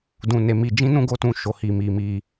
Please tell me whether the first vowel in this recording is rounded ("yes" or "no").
yes